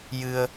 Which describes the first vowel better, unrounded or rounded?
unrounded